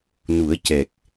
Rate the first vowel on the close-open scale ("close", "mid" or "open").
close